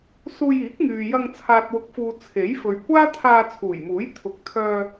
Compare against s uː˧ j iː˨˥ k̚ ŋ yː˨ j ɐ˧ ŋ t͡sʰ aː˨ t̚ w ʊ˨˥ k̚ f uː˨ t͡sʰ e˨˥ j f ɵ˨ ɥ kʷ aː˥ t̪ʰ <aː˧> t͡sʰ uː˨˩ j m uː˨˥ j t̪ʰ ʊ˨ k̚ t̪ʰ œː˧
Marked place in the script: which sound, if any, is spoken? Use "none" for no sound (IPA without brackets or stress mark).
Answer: aː˧